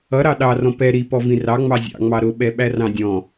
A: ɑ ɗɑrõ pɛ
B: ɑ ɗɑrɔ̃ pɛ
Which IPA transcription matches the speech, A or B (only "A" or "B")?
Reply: B